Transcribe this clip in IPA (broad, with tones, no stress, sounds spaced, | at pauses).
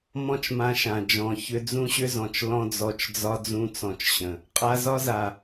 m ɔ̃˦ t͡ʃ m ã˧ ʃ ã˨ d͡ʒ ɔ̃˨ ç ʏ˧ d͡z ũ˦ ɕ ʏ˦ z ɔ̃˨ t͡ʃ l ɔ̃˦ d͡z ɔ˧ t͡ʃ d͡z ɒ˦ d͡z ũ˦ t͡s ɔ̃˧ t͡ʃ ɕ ə̃˨ | qʼ a˧ z ɒ˦ z a˨